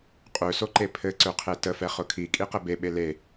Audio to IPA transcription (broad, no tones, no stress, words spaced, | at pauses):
qʼøsoǃe pʰɘǀøqʰe təfɛ χʊkʰikʼi qɘbeɓe le